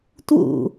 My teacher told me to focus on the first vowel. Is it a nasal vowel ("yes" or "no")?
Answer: no